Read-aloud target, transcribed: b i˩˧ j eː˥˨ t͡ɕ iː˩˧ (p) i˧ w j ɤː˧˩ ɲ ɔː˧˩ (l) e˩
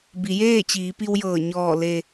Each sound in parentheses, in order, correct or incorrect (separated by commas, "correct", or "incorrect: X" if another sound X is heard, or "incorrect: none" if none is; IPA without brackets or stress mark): correct, correct